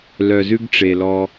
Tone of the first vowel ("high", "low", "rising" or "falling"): low